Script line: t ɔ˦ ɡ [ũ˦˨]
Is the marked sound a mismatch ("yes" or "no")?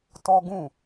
no